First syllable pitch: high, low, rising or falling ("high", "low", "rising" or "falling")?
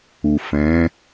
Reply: low